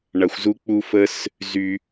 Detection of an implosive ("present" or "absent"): absent